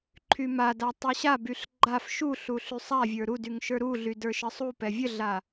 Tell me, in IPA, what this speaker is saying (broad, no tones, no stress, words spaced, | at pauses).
ǃʰymada tˤuɕabyɬ ɡ͡ǃaf ʃuɬu ɬysˤavʲə˞ ɾudyŋ ʃə˞ɾuɮy də˞ʃəsˤupɛ vʲəɮa